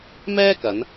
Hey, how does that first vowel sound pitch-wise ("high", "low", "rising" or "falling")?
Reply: high